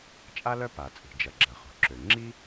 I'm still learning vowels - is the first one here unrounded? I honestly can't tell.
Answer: yes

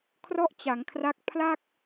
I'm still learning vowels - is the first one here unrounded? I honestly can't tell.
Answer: no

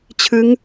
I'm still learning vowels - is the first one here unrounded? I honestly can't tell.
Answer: yes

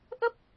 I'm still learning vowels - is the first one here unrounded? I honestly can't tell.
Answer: yes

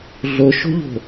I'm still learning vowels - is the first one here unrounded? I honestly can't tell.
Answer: no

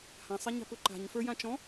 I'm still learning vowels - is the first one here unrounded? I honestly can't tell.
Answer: yes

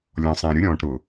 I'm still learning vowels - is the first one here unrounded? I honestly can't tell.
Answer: no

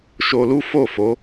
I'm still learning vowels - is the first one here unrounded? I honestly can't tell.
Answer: no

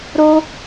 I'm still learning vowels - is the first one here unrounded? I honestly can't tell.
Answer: no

